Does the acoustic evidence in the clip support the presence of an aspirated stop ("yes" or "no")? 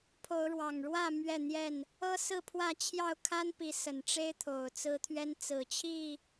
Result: yes